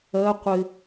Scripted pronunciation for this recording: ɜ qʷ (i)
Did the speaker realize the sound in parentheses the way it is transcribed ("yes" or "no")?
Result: no